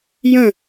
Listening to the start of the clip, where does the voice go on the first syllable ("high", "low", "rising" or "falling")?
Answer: falling